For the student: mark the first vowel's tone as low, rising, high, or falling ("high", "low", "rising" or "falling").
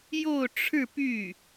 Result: falling